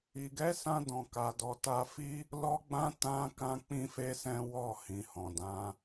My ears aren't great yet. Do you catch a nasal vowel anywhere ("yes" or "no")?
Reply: yes